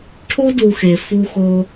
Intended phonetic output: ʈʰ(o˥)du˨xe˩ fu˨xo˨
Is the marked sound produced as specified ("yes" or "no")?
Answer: yes